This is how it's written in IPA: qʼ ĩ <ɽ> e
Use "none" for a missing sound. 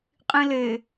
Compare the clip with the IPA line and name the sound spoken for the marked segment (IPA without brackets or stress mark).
l